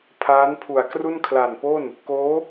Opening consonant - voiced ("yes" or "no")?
no